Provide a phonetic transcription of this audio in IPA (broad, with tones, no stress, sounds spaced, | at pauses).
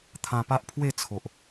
t̪ʰ ã˧ p a˦ ʔ pʰ w e˥˧ t͡sʰ o˨ ʔ